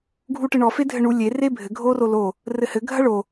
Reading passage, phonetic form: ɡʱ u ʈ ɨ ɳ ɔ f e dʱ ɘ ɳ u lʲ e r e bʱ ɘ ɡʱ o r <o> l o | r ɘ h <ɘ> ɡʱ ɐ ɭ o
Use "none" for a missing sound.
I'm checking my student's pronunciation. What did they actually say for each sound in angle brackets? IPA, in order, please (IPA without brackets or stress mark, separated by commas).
o, ɘ